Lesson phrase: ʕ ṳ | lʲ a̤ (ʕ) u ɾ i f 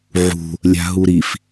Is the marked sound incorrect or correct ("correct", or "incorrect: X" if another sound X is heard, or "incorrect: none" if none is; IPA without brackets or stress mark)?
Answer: incorrect: ɦ